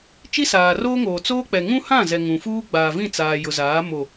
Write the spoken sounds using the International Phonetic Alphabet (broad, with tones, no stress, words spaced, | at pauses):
t͡ʃi˦saː˨roː˦ŋoː˨ t͡soː˦k͡pɛ˨ ŋũ˦hã˦˨zɛ˨ ŋũ˨fuː˦ ɡ͡baː˨vĩ˦˨t͡saː˨ jʊ˨zaː˨˦ mo˨